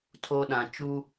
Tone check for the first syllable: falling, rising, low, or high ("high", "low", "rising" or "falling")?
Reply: high